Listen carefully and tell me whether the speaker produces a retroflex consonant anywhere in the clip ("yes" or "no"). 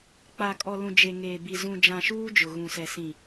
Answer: no